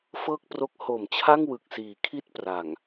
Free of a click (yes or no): yes